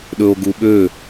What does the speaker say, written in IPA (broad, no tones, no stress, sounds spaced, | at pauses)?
ɗ ɵ o̯ ɡ u ɓ ø